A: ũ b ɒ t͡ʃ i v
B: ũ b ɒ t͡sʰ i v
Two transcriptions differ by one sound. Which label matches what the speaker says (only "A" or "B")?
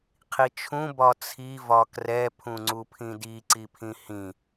B